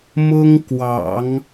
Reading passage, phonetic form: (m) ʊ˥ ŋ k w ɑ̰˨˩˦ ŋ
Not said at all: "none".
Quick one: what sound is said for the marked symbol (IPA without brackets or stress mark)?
m